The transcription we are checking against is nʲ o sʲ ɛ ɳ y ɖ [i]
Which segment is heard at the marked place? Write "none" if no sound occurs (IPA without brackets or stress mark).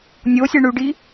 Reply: i